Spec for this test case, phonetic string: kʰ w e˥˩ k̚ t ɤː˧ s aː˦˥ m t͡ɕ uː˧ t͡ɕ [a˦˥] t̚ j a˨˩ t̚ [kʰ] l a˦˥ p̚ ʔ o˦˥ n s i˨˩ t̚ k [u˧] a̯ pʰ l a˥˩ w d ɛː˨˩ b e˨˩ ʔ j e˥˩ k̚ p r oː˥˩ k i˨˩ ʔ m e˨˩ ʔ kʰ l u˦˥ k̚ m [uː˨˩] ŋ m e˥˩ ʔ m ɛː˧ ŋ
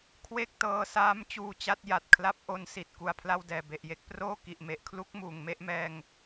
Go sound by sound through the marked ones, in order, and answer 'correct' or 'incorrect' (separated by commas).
correct, correct, incorrect, correct